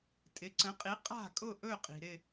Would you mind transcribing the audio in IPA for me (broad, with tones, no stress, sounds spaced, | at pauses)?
tʼ ɪ˩˥ ǀ ə̃˩˥ qʼ i˩˥ qʼ a̤˥˨ kʼ ʊ˥˨ ʔ ɵ˥˨ qʼ i̤˩ ɾ ɪ˥˨